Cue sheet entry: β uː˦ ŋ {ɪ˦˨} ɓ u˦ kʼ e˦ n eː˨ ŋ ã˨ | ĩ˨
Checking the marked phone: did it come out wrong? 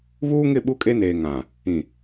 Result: no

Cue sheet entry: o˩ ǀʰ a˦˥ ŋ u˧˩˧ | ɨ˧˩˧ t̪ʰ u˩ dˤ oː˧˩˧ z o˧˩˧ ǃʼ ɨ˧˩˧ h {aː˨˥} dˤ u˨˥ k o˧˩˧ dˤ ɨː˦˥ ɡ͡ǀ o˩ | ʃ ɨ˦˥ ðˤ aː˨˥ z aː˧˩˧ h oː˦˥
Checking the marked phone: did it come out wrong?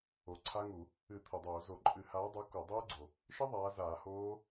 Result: no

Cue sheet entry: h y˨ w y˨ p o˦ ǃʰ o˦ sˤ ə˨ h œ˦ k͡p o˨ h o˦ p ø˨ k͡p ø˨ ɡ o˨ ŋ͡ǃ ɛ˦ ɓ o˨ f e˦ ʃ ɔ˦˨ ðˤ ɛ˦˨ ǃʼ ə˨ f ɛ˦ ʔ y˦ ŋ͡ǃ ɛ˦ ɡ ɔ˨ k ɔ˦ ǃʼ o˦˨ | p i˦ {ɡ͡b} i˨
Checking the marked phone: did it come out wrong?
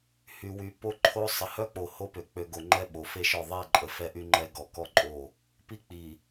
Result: yes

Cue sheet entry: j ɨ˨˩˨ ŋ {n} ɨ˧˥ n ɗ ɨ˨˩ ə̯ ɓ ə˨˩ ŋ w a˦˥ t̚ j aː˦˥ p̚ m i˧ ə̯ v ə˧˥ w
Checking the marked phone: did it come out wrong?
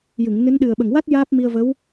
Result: no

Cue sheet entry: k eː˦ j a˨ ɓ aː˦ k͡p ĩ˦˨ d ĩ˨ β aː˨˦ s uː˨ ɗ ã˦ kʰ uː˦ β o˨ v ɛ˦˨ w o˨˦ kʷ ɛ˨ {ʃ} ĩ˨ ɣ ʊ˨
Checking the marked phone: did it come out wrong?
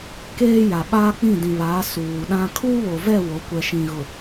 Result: no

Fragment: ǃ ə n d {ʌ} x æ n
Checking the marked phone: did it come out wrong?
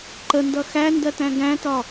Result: no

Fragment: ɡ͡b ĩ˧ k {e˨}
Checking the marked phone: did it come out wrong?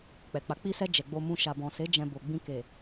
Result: no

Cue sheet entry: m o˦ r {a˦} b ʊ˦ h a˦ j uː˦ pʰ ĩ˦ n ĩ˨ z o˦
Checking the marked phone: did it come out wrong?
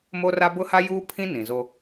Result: no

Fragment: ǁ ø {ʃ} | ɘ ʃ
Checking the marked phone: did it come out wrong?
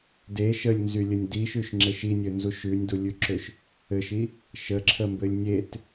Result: no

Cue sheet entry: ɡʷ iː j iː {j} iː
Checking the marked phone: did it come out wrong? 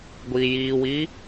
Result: yes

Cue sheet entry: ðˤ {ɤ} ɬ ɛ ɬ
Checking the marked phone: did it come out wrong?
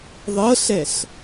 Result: no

